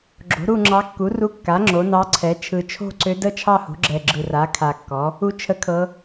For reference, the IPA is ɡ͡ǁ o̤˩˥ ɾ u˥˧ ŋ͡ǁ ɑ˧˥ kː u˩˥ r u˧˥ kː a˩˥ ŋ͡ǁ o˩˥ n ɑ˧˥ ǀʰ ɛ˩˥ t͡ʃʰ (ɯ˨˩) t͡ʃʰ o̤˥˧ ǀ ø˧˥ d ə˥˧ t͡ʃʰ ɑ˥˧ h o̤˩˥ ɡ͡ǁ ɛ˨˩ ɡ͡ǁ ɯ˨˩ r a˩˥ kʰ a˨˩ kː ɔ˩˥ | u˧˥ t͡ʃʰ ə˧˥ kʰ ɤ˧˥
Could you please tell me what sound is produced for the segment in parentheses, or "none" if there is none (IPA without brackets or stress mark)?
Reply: ɯ˨˩